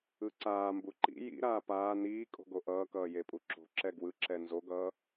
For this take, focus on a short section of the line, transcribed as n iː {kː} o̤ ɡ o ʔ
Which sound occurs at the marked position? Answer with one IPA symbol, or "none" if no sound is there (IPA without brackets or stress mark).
kʼ